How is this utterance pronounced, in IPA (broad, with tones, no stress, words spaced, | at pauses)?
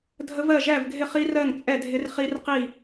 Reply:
dʱə˦˥vɜ˥˨ ʒæ˥˨vɡʱɪ˥˨χi˦˥ rɜ˥˨ŋt͡sʼɛ˥˨ dʱɪ˦˥r χi˦˥rqi˥˨